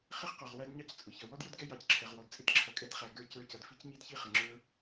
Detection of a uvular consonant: present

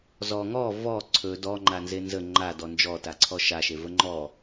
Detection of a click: present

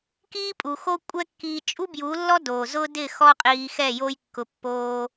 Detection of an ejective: present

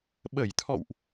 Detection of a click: absent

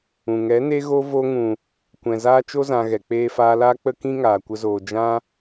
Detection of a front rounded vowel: absent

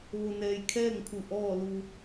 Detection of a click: absent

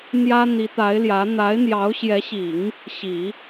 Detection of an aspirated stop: absent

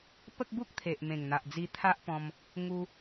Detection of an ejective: absent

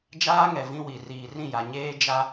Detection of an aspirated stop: absent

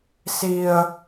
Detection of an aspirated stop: absent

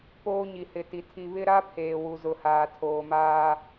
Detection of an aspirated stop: present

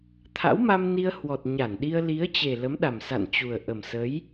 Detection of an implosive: present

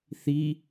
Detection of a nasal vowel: absent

